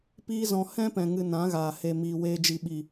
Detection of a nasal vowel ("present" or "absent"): present